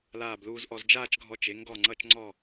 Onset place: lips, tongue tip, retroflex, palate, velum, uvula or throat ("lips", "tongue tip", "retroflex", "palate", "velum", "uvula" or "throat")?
tongue tip